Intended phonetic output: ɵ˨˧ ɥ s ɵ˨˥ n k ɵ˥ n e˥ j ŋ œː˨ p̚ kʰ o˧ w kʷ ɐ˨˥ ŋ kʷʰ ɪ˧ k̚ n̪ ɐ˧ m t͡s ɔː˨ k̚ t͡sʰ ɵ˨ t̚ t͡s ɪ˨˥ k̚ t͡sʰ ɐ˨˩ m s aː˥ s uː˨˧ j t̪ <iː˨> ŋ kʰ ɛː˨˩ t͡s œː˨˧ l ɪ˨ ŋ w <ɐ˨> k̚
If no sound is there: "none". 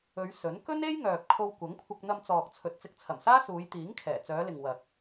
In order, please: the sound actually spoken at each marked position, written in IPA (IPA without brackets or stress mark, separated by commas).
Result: iː˨˥, ɐ˨